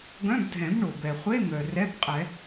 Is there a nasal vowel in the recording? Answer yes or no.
yes